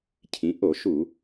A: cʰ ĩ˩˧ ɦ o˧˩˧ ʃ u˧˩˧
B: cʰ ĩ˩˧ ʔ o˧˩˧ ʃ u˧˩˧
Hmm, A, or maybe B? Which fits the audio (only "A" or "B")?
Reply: B